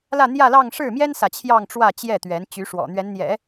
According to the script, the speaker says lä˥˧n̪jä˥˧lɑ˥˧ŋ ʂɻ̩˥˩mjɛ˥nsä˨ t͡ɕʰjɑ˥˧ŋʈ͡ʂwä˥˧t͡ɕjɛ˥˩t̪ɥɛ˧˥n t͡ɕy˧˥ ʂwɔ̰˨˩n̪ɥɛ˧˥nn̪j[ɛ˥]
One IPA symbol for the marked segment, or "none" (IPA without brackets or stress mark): ɛ̰˨˩˦